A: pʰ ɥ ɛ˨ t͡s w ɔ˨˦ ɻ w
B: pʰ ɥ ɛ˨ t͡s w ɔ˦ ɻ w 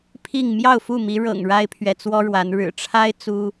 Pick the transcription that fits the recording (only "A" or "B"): B